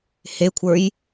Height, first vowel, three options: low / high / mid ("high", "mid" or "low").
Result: mid